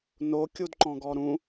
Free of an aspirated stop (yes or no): yes